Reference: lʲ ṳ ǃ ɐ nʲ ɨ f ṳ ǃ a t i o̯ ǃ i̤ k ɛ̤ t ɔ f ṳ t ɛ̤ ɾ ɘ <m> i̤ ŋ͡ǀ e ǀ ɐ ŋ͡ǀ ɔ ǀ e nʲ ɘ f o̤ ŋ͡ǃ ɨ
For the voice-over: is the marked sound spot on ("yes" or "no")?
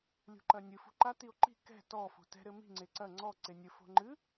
yes